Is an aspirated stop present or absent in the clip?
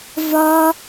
absent